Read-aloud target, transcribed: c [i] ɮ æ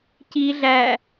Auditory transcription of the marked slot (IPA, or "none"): i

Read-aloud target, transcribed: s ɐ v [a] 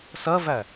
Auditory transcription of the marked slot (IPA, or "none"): æ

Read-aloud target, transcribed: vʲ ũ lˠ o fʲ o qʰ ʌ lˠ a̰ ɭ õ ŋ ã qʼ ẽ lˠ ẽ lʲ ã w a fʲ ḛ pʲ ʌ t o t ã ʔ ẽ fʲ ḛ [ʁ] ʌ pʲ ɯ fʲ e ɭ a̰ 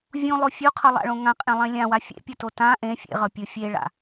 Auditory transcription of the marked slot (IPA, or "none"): ʁ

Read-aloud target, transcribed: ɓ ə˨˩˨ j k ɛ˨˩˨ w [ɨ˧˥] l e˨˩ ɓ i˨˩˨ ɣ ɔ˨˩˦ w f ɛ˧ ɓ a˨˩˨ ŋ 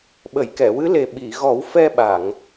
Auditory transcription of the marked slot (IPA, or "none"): ɨ˧˥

